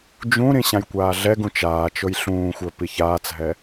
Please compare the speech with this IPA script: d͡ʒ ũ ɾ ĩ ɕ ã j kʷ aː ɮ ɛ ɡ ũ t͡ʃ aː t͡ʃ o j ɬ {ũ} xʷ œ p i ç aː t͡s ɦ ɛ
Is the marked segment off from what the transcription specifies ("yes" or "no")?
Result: yes